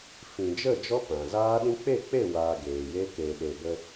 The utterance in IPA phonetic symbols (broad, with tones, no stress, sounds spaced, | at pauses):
f ĩ˨ d͡ʒ ə˦˨ d͡ʒ ɔ˦ p ã˨ z aː˦ ɗ ĩ˦ k͡p e˦˨ k͡p e˦˨ w aː˧ ɡ eː˨ j e˦ k e˨ ɗ e˨ b ə˧